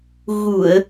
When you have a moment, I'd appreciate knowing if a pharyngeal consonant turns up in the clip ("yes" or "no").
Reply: no